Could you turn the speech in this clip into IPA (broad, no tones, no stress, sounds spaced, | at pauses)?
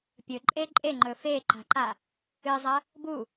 pʲ ɵ ǃʼ e ǃʼ e ŋ͡ǃ ɵ f e ǃ a̤ ǃ a | ɨ zˤ ɐ | b u